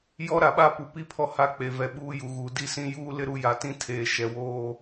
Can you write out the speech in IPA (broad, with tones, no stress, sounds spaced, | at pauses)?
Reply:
j ɔ˦ ɾ a˨ ɓ a˦ p u˨ p i˦ pʰ ɔ˦ h a˦ k͡p e˨ v ɛ˨ ɓ uː˦ j u˨ ɣ uː˨ d i˦˨ s ĩ˦ j uː˦ l ɪ˦ ɾ u˨˦ j a˨ t ĩ˦ tʰ eː˨ ʃ ɛ˨ w oː˦